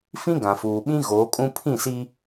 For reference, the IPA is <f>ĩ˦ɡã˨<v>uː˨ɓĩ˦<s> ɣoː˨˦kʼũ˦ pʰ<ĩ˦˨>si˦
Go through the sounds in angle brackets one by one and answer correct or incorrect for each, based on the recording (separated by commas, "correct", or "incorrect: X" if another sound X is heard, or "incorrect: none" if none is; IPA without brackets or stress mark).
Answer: correct, incorrect: f, incorrect: none, correct